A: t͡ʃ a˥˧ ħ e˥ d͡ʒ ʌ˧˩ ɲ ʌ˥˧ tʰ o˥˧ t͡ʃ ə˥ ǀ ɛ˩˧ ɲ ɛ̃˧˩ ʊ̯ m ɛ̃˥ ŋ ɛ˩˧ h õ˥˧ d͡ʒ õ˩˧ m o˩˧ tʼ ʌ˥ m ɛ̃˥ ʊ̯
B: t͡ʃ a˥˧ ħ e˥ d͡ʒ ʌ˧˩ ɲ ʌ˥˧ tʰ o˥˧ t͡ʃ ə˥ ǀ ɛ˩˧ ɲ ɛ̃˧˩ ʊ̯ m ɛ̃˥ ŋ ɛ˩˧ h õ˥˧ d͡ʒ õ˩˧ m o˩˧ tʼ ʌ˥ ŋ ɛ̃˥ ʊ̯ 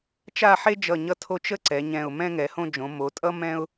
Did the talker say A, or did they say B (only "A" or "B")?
A